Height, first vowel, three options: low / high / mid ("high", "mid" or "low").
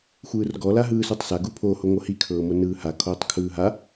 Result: high